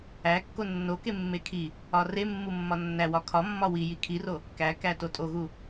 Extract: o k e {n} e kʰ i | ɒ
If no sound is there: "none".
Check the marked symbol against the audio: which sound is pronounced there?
mː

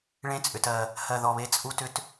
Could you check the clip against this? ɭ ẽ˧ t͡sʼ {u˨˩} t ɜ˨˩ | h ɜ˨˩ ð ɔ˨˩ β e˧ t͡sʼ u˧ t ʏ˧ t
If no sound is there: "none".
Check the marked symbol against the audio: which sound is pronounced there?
ʏ˨˩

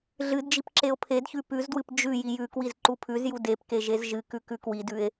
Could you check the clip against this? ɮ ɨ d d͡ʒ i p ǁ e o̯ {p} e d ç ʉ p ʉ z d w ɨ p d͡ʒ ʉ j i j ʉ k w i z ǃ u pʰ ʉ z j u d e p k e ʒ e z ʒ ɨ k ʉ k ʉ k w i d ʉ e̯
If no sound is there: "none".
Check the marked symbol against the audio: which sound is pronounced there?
pʰ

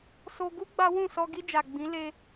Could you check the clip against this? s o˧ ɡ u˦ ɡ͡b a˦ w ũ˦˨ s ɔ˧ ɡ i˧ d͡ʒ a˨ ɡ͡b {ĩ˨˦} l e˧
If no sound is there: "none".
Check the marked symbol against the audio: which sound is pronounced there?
ĩ˨˦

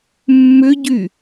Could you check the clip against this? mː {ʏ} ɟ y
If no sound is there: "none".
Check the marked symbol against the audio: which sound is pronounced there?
ʏ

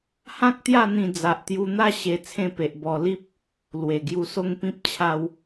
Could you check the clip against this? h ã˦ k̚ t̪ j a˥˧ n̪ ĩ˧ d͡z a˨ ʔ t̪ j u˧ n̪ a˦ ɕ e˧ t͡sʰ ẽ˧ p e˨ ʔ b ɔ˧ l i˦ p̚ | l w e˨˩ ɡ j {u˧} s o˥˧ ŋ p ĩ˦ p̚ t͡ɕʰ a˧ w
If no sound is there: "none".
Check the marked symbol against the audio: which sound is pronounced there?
u˧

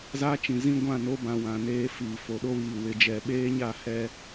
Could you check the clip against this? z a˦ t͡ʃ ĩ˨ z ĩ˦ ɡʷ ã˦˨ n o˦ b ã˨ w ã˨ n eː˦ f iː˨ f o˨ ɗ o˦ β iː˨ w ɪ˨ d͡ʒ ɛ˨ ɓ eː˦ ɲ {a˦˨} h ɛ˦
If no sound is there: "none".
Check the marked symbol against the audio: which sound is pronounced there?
a˦˨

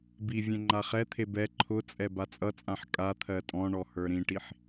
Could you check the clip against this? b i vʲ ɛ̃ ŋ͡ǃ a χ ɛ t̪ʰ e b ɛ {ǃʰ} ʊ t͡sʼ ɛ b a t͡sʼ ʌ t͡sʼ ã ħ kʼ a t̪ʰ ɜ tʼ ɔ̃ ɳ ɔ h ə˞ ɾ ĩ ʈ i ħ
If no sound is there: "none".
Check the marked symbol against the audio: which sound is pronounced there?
ǃʰ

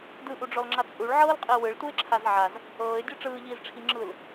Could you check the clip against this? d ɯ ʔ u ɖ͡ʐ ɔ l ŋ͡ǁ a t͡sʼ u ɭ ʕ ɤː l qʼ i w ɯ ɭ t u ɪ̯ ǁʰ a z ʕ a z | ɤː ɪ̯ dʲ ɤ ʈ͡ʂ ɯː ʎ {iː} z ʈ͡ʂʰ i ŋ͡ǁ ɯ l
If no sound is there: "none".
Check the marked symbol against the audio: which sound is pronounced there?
iː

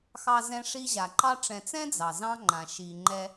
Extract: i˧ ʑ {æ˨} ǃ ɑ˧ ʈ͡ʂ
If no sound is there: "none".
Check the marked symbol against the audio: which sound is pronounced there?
a˨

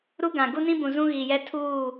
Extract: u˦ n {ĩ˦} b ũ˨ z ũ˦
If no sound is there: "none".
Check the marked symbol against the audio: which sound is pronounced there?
ĩ˦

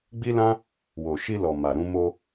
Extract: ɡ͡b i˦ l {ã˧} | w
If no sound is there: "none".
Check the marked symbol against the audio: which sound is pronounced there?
ã˦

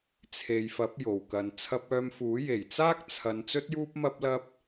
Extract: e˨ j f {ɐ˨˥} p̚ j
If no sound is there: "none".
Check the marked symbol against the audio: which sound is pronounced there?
ɐ˨˥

